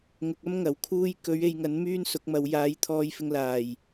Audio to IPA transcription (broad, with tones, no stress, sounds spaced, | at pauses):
ŋ ʊ˨ k̚ ɐ˥ m ŋ ɐ˨˩ w kʰ uː˧ j k ɵ˨˥ ɥ e˨˧ j ŋ ɐ˨˥ n m yː˥ n s ʊ˨˥ k̚ m ɐ˨˧ w j aː˨˥ j t̪ʰ ɔː˧ j f ɪ˧ ŋ l aː˨˩ j